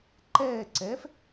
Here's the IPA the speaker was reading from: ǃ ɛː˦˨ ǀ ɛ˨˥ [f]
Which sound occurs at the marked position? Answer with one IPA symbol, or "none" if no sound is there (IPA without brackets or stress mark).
f